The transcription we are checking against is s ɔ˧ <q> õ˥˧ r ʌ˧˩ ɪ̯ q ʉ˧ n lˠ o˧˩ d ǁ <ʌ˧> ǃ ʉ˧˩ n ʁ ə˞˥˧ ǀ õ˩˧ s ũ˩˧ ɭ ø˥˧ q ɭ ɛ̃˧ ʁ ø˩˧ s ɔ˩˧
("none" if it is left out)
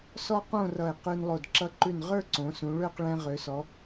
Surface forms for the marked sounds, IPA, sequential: q, ʌ˧

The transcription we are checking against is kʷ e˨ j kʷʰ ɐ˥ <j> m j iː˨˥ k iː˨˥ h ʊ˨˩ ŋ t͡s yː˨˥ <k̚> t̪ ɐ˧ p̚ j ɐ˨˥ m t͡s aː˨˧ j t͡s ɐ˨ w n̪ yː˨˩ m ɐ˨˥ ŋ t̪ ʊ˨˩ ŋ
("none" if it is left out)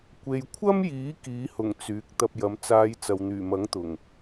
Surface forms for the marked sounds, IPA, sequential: none, k̚

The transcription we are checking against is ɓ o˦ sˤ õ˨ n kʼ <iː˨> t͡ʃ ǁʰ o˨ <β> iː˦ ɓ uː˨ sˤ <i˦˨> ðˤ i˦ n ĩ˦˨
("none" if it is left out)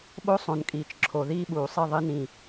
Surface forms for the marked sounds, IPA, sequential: iː˨, ð, i˦˨

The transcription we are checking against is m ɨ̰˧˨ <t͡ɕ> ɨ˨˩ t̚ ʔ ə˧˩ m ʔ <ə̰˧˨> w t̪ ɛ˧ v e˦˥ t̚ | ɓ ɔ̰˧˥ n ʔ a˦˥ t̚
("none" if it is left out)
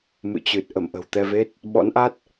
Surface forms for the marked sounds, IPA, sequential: t͡ɕ, ə̤˨˩

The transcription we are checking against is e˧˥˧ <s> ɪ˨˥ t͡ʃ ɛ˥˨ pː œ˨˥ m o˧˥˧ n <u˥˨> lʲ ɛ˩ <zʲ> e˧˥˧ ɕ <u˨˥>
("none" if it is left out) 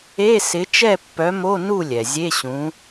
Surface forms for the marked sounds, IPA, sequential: s, u˥˨, zʲ, ũ˨˥

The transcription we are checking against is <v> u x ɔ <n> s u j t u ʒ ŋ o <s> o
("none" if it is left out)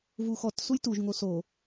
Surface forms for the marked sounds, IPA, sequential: v, t, s

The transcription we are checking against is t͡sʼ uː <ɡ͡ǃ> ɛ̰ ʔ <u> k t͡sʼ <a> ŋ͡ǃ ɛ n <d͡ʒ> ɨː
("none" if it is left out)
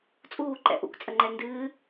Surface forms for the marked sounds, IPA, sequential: ǃ, ṵ, ə, d

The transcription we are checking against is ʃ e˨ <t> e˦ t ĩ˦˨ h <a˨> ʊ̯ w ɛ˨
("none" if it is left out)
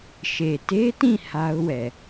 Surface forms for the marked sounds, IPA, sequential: t, a˦

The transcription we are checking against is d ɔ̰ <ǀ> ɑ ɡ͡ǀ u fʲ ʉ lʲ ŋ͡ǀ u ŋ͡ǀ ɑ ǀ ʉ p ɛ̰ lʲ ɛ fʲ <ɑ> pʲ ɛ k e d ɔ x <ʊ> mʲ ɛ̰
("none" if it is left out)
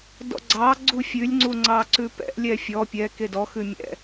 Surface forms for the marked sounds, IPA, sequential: ɡ͡ǀ, ɔ, ʉ

